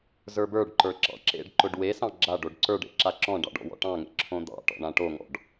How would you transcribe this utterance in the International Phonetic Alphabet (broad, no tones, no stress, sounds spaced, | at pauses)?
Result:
z ə˞ b ə˞ ɖ ǃ ə˞ ǁ ɑ̰ ǁ ḛ ɖ ǃ ʊ ɖ w e s ɑ̃ ɡ͡ǁ a ɖ o ɖ ǀ ə˞ ɖ ḛ ǁ a ǁ ɔ̃ ɖ ɑ̰ ɖ ɔ̰ w ɔ̰ ʈ ɑ̃ ŋ ḛ ǁʰ õ d̪ ɑ̰ ʈ ɔ̰ ɳ ã ʈ o ŋ ɔ̰ ɖ